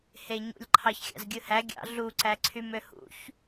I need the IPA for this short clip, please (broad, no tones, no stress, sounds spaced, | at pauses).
h e ɲ ṵ lʲ ǃʰ ɑ ç xʲ ɑ̰ z ɡʲ ɯ h æ ɡʲ ɑ̰ ɮ u ǀ æ ǀʰ y m ø h ṵ ç